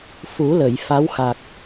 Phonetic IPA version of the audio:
f u˨˩˦ l ə˨˩˨ j f a˧˥ w x a˨˩ k̚

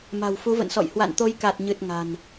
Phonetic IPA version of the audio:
m a̤˨˩ w f u˨˦ v ə̰˧˨ n s ɔ̰˧˨ j h w a̰˧˨ n t̪ o˨˦ j k a˨˩ t̚ ɲ ɨ˨˩ t̚ ŋ a̤˨˩ n

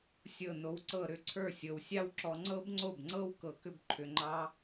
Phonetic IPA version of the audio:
sʲ ɤ˥˩ n o˧ w ǀ ɤ˥˩ ɾ ʏ˥˩ ǀʰ ə˞˥˩ sʲ ɤ˩ w sʲ ɑ˥ w ǁ ɔ˧ ŋ͡ǀ ɤ˥ b ŋ͡ǀ o˥˩ b ŋ͡ǀ ɤ˥ w k ɤ˧ k ʏ˥ b ǃʰ ʏ˧ ŋ͡ǃ ɑ˥

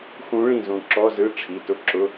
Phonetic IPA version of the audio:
x ũ˧˥ ɭ ĩ˥˩ z ũ˧˩ ǁ ɔ˧˥˧ z ɯ˧˥˧ ʈ͡ʂʰ i˩˧˩ t ʊ˥˩ ǁ ʊ˧˥˧

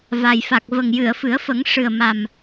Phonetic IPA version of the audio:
v a˨˩ j f a˨˩ k̚ v ə˨˩ ŋ j ɨ˨˩˨ ə̯ f ɨ˨˩˦ ə̯ f ə˨˩˦ ŋ ʂ ɨ˨˩ ə̯ m a˨˩ m

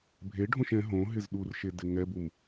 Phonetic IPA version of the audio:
bʱ e ɖʱ õ ʃ ɛ̃ ɦ õ ɦ ɪ z ɗ u r ʃ e d ɪ ŋ ɛ b u m

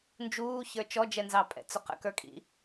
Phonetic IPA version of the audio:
n d͡ʒ uː ç ə˞ t͡ʃ ɔ d͡ʒ ɛ n z ɑ pʼ ɛ̰ t͡s ʊ q ə̰ k ə˞ kʼ ḭ

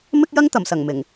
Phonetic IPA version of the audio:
m ɪ˥ k̚ j ɐ˥ ŋ t̪ ɐ˨˩ m s ɐ˨˩ ŋ m ɪ˨˩ ŋ

